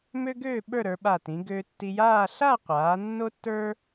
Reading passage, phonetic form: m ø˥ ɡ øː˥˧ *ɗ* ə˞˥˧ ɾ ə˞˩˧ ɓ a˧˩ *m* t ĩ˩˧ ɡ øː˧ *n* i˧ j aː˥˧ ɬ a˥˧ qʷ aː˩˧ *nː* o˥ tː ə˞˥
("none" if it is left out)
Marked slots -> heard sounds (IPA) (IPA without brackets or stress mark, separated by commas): ɓ, none, tː, nː